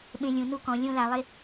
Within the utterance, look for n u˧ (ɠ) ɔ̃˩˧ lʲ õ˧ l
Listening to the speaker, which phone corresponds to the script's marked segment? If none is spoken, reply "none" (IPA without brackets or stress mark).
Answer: k